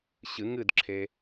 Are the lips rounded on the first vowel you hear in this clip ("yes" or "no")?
no